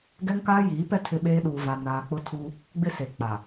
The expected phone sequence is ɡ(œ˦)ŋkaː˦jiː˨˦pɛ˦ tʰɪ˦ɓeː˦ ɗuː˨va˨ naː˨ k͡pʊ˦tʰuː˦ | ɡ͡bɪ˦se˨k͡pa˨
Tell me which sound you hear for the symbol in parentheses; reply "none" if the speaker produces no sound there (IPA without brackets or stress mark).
ɛ˦